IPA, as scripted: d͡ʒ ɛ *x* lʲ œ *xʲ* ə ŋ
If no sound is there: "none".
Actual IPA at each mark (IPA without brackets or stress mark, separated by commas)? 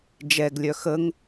ɡ, x